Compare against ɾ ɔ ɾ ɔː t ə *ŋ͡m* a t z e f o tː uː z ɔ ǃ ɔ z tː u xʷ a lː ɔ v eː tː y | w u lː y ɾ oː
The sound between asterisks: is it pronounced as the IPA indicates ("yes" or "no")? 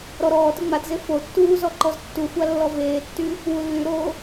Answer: yes